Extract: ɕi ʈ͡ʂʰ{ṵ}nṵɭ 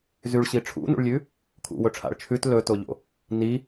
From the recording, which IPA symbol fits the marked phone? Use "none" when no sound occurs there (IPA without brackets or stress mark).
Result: ṵ